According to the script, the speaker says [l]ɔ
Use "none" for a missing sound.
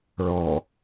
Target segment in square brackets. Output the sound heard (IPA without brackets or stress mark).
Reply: ɭ